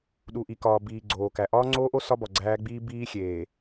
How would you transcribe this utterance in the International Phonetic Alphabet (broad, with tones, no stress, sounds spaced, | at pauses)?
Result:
ɗ u˨ ʔ i˨ k ɒː˨ b iː˨ ɡ͡ǀ oː˨ k æ˨ ʔ ɒː˦ ŋ͡ǀ oː˦ ʔ o˦ s ɒ˦ b ɒ˨ ɡ͡ǀ æː˦ ɡ͡b iː˦ b iː˦ xʲ eː˨